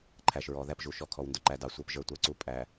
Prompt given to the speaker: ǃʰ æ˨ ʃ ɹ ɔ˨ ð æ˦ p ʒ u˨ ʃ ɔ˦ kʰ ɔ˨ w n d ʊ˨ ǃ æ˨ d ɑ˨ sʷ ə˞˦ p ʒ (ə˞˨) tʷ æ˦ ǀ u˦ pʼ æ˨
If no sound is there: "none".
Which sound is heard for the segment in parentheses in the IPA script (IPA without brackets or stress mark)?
ə˞˦